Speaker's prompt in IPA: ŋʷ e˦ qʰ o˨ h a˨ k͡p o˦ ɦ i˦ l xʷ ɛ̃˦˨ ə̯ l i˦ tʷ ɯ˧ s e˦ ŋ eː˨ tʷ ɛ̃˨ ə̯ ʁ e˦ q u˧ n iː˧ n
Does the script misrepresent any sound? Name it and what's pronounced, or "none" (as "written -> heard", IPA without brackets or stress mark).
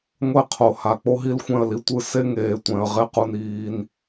none